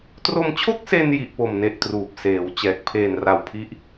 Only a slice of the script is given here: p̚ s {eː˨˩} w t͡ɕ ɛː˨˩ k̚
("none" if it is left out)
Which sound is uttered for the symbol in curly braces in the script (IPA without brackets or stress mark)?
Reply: eː˩˦